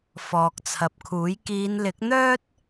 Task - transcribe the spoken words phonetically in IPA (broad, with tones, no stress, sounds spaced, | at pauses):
f ɔː˨ k̚ t͡sʰ ɐ˨ p̚ kʰ uː˨˥ j k iː˨˧ n l ɪ˨˥ k̚ n̪ œː˥ t̚